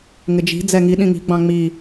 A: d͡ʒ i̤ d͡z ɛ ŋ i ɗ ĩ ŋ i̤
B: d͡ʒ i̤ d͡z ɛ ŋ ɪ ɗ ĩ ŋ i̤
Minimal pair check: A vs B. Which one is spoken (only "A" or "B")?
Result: A